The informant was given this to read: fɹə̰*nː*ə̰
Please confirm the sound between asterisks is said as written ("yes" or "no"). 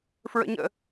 no